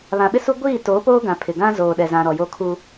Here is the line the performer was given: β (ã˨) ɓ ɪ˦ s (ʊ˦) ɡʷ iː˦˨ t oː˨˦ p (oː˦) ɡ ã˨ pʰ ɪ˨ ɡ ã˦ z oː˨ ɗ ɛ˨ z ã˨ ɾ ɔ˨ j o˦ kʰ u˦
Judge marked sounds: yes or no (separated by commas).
yes, no, yes